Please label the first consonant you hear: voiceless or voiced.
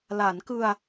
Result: voiced